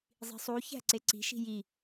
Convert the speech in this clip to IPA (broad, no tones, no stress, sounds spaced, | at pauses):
zˤ i̤ sˤ u ç æ̤ ǀ e ǀ i̤ ʃ i̤ j i